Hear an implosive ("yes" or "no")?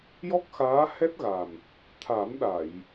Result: yes